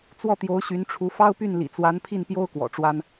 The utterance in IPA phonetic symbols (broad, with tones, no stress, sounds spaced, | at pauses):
t͡s w ɔ˥˩ t̪ j o˧˥ ʊ̯ ɕ y˧˥ n ʈ͡ʂʰ u˧˥ f ɑ˥ ʊ̯ p y˥˩ n l ḭ˨˩ t͡s w a˧˥ n pʰ i˥˩ n p j o˥ ʊ̯ k w ɔ̰˨˩ ʈ͡ʂ w a˥ n